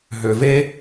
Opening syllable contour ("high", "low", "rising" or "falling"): low